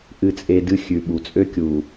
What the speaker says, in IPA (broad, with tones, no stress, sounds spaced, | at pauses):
ʔ ɨ˨ t͡sʼ e˨ d ɨ˦ xʲ ʉ˨ ɓ u˨ t͡sʼ ø˦ kʲ u˨